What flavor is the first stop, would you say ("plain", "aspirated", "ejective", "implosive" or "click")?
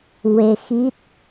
plain